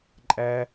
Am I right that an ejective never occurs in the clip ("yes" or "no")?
no